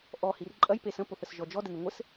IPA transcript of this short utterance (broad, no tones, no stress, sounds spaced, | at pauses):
ʔ ɔ h i r ǃʼ ɐ j p e s ə̃ p o θ ə s ʒ ɔ d͡ʒ ɔ d ɘ n ɘ ŋʷ ɘ s